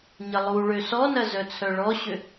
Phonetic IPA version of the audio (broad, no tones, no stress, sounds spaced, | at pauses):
ɲ ə lˠ u ɭ ø s ɔ n ɐ z œ t͡sʰ œ ɭ ɔ ɕ ʏ